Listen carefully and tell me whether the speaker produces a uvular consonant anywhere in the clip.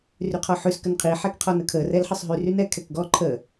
yes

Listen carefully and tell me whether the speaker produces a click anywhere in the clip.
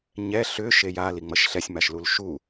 no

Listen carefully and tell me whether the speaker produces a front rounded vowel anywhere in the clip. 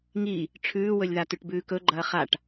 no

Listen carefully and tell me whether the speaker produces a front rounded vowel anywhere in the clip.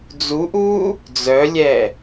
yes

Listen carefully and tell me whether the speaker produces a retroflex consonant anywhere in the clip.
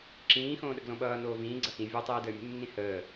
no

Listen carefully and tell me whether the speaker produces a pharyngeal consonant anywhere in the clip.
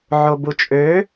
yes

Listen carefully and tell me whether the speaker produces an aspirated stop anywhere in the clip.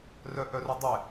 no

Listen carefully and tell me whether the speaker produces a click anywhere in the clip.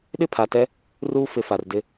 no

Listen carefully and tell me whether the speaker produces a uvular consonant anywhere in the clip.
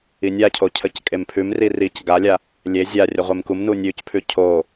yes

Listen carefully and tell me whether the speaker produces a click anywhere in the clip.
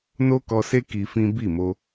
no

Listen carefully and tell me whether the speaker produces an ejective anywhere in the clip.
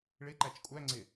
yes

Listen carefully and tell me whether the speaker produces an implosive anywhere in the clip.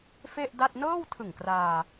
no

